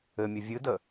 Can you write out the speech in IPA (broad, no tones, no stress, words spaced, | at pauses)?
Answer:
ɘmʲɘ vʲɨdə